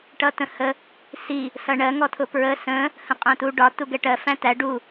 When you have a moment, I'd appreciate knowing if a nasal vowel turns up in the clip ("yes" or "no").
yes